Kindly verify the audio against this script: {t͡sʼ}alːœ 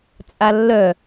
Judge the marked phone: correct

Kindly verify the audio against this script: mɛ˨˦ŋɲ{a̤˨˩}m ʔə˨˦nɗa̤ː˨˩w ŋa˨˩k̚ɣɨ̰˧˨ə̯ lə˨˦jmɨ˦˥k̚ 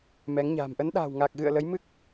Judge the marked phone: correct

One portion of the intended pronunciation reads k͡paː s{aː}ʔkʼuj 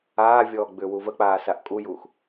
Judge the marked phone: incorrect: a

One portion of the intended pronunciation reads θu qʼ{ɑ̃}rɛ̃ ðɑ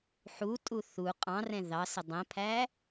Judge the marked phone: correct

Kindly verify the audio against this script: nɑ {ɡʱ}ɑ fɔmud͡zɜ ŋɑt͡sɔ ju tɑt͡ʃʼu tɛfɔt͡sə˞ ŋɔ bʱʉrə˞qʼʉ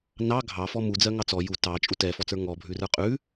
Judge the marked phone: correct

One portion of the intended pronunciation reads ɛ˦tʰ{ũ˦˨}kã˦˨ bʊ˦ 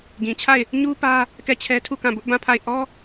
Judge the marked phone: incorrect: u˦˨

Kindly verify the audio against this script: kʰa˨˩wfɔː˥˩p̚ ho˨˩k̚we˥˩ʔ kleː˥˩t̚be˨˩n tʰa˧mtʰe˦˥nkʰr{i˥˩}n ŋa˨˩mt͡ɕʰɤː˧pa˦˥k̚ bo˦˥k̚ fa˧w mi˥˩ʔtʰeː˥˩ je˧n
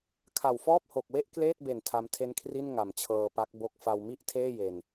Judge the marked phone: correct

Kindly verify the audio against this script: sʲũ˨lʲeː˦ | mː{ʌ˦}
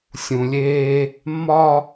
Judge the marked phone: incorrect: ɒ˦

